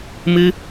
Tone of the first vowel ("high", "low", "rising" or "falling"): high